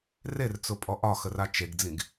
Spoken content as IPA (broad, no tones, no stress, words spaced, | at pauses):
rert͡sʊpʼɔ ʔɒxəra t͡ʃeɡd͡zĩɡ